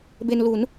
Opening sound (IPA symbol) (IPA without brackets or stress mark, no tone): b